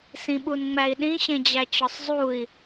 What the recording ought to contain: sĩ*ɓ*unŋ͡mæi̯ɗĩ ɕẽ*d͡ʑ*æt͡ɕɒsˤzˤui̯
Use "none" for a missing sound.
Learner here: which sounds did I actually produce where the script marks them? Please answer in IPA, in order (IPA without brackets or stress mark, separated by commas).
ɓ, d͡ʑ